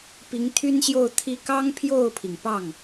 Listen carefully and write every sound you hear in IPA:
pi˧˥ŋt̪ʰy˥nɕjo˥˩ʊ̯t̪ʰi˥ kɑ˥ŋpʰjo˥˩ʊ̯pʰi˩ŋpɑ˥˩ŋ

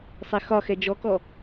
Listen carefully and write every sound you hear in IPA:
sˤɛxɒxɛ d͡ʒɔkɔ

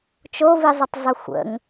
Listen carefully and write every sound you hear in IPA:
t͡ʃovizˤətˤzˤə xʷə̰ŋ

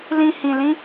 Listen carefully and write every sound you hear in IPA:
lĩ˧ hĩ˧lĩ˦

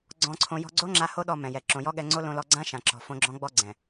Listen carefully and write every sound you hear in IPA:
ɡ͡ǀɔ̃˧ǀʰõ˧ jɔ̤˧ɡ͡ǀo˦ŋ͡ǁa˧ ho˦ɗɔ˧ mɛ̃˨jɛ˨ ǁõ˨jɔ˦ɠɛ˧ŋ͡ǀo˦ lõ˧lɔ˧ɡ͡ǀã˦ʃã˨ ǁɔ̤˨ fõ˧ɡ͡ǁɔ̃˦ ɡ͡bɔ˧ɡ͡ǀɛ̃˨

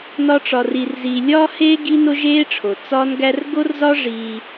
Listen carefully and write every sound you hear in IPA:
nɒ˦ʈ͡ʂɒ˧ri˧rziː˧ lʲɒː˦heː˦ ɡi˦no˦ʒeː˦ʈ͡ʂʰo˨ t͡sɒː˦nɡæ˦r ɡo˦rzɒ˦ ʐiː˧

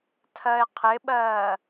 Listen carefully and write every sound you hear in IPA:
tʰɜe̯qʰɪɓɜː

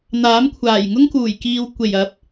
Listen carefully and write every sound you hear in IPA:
n̪aː˨˥m kʷʰaː˨˩jŋʊ˥ŋkuː˨˩jkiː˨w kʷe˨˩jɐ˨˥p̚

